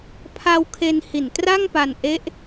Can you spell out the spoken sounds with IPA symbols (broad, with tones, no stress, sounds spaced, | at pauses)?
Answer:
pʰ a˧ w kʰ e˧ n h i˨˩ n t r a˥˩ ŋ p a˧ n ʔ e˦˥ ʔ